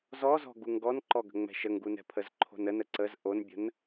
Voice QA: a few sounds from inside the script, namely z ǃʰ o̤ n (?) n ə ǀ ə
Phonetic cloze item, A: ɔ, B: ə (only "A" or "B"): B